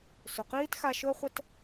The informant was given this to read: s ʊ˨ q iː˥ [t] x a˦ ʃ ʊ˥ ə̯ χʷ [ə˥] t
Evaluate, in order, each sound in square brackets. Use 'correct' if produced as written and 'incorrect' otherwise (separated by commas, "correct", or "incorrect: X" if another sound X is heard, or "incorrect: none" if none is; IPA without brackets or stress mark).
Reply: correct, correct